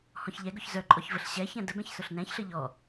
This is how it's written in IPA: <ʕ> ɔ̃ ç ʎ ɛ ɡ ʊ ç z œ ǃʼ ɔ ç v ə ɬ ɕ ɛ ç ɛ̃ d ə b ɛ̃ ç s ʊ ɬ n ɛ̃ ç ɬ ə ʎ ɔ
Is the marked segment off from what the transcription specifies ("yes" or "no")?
yes